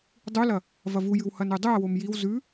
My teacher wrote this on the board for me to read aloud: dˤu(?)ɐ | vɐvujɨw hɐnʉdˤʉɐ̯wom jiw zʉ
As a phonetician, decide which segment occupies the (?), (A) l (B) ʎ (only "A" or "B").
A